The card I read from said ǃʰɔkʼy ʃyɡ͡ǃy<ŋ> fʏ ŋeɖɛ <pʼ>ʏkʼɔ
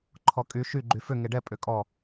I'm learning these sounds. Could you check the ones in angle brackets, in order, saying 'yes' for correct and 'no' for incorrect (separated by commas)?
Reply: no, yes